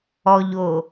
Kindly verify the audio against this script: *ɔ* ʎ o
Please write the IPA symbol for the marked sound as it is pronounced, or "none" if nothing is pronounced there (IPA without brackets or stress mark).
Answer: ɔ